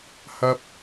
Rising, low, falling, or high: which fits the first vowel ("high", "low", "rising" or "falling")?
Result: high